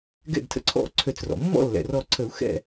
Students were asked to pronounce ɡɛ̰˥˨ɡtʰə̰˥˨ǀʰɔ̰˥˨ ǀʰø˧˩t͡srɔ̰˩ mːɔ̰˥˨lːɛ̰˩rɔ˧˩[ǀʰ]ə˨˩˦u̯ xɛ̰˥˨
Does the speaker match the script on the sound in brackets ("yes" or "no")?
yes